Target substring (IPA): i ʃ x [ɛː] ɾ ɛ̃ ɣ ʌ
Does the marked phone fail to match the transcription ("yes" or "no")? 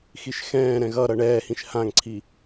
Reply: yes